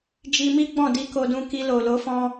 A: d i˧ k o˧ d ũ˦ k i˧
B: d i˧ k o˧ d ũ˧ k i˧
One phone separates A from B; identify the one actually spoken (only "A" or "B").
B